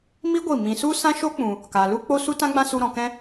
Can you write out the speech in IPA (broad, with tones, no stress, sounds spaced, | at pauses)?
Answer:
m i˦ ɡʷ i˦˨ m ĩ˨ s u˦ s ã˦ ʃ o˦ k͡p ũ˨ | k a˨ l u˦ k͡p o˦ s u˦ t ã˦ ɡ͡b ã˦ s u˧ ɾ ɔ̃˨ k ɛ̃˧